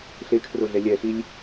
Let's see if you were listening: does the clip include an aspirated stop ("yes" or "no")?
yes